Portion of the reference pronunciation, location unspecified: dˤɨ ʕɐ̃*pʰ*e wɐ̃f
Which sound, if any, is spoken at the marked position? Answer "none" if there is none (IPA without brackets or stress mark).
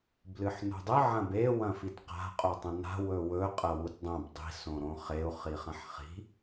b